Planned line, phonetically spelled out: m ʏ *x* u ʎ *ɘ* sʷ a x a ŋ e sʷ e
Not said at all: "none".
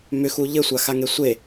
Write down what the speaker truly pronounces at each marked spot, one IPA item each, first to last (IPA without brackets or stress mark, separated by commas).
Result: x, ɘ